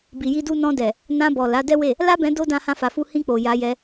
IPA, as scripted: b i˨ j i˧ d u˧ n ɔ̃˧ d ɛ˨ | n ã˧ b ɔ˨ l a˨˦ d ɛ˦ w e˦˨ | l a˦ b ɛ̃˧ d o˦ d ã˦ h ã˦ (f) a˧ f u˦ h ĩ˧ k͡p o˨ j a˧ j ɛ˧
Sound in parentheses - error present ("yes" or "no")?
no